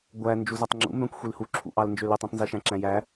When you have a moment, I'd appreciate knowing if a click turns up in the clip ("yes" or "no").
yes